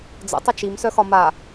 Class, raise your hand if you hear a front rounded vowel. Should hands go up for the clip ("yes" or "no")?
yes